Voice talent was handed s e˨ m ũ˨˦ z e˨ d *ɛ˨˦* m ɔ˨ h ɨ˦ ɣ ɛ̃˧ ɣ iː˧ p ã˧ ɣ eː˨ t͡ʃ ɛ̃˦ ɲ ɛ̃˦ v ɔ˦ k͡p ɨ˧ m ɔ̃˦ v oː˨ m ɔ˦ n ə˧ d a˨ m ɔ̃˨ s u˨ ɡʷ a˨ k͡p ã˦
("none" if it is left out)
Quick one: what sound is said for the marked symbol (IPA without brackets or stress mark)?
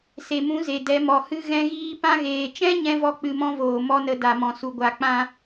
ɛ˨˦